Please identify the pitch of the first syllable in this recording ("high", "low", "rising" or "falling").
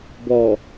low